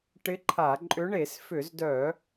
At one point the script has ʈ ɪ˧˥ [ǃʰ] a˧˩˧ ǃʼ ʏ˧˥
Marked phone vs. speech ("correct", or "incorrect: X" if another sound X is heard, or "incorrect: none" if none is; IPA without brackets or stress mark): correct